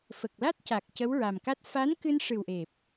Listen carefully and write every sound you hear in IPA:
f ə˨˩ k̚ l a˦˥ t̚ c a˨˩ k̚ c ə˧˥ w ɹ a˨˩ m k a˦˥ t̚ f a˧˥ n k ɨ˧ n ʂ ɨ˨˩ w ʔ e˨˩ p̚

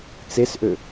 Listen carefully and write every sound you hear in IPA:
t͡s e s ʔ ø

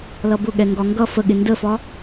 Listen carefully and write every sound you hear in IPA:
l ʌ b ʊ ɠ ɛ ŋ ɡ ɒ ŋ ɡ ʌ f ə ɠ ɪ n d ə f ɒ

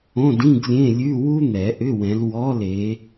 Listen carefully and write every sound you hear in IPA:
õ˧˥˧ d ĩ˧˥˧ ɡ lʲ ẽ˧˥˧ lʲ ʉ˧˥˧ w u˥ n̪ ɛ˨˩˦ ʔ ʏ˧˥˧ w ɛ̃˨˦ l w ɔ˧˥˧ l e˨˦

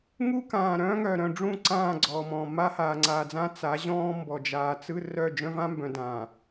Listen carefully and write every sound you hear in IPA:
ŋ u˦ k ãː˨ ɾ œ̃ː˦ ŋ œ˨ ɾ œ̃˨ ɖ͡ʐ ũ˦˨ ǀ ãː˦˨ ɡ͡ǀ ɔː˨ m ɔ̃ː˨ m a˦ h aː˨ ŋ͡ǀ aː˨ d͡z ã˦ t͡s a˨˦ ʑ ɔ̃ː˦ m b ɔ˨ d͡ʒ aː˨ t͡s ɯ˦ r œ˦˨ d͡ʒ œ̃˦ v ã˦ m b œ̃˨ d ãː˨

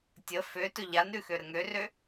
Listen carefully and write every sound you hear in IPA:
tʲ ə f ø t ɵ ʎ a n ɾ ʉ x ø ɾ ə ŋ ø r ø

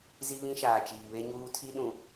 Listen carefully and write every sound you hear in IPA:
z i˦ β ĩ˦ ʃ aː˨ t͡ʃ iː˨ β e˦ ɲ uː˦ tʰ i˦ ɗ ũ˨

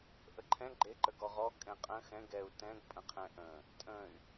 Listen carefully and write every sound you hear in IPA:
ʔ ə ǃʰ ɛ̃ ɡ͡ǃ e ǃ ə ɡ ɔ ʁ ɔ kʼ ɛ̃ qʼ ə̃ x ɛ̃ ɡ ɛ u̯ t ɛ̃ ɡ pʼ ə̃ qʰ ɛ̃ ʔ ə̃ | tʼ ə̃ y̯

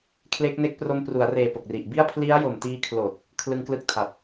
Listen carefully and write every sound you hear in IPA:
kʰ l e˦˥ k̚ n e˦˥ k̚ p r o˧ m p r u˩˦ a̯ r eː˨˩ p o˨˩ k̚ r i˨˩ ʔ b i˥˩ a̯ pʰ l i˦˥ a̯ j o˨˩ m t iː˧ kʰ l oː˨˩ t̚ | kʰ l ɯ˧ ŋ k l ɯ˥˩ k̚ tʰ a˨˩ t̚

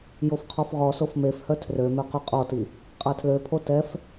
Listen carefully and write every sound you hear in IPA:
j o f qʰ ɔ f ʁ ɔ s o f m e f h œ tʰ r ø m ø q y qʼ ɔ t i | qʼ a tʰ l ø pʰ o t ɛ f

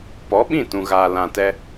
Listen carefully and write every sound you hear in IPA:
p ɔ˨˦ ɓ ĩ˦˨ t ũ˨ ɣ aː˨ l ã˨ t ɛ˧

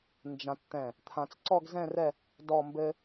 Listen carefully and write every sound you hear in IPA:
n d͡ʒ ã˧ t t̪ ɛ̃˧˩ | t̪ʰ ã˧ t͡s ǀ ɔ˥˧ ɡ z ɛ̃˥˧ r ɛ˥˧ | d ɔ˥˧ m b ɘ˥

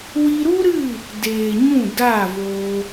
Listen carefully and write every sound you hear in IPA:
w i˧ ɾ u˦ ɾ ɨ˦˨ | d eː˨ ɲ ũ˦˨ d a˦˨ v oː˧

